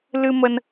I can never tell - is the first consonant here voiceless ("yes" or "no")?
no